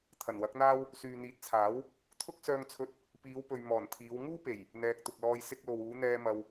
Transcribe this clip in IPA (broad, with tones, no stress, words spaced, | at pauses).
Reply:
t̪ʰɐ˨˩nwɐ˨˥k̚n̪aː˥w | syː˨n̪iː˨˥t̚t͡sʰaː˨˥w | t̪ʰʊ˥k̚ sœː˧ŋt͡sʰɵ˧t̚ | piː˨˧wpɵ˨ɥ mɔː˨˩nt̪ʰiː˨˧w ŋuː˥pe˨˩j | n̪ɛː˨k̚t̪ʊ˨k̚lɔː˧j sɪ˧k̚lo˨wuː˨˧ n̪ɛː˧ mɐ˧w